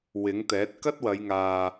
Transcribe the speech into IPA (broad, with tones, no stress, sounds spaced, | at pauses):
w ɪ˨˥ ŋ t̪ ɛː˨˥ t̚ k ɐ˥ t̚ w ɐ˨˧ j ŋ aː˨